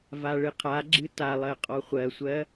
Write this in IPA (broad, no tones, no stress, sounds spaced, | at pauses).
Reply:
v a ɭ ɨ qʰ a ɡ͡ǁ ɨ t a lˠ ɜ qʼ ɔ χʷ ɜ sʷ ɜ